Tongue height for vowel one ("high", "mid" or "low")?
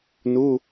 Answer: high